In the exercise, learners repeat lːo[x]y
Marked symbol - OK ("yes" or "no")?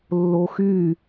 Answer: yes